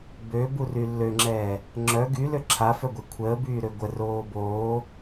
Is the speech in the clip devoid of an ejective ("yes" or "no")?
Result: yes